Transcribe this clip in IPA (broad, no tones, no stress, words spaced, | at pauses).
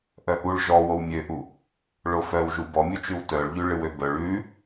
ʔœʔuɭ ʒɔ wowmʲøʔu | ɭofœwʒu bɔmʲut͡ʃʉw tœɭʎʉ ɭɨwøbœɭ ʉ